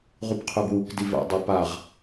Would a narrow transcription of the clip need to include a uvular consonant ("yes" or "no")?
yes